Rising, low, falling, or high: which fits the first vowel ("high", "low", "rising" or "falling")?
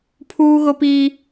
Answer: high